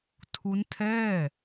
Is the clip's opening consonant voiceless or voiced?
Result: voiceless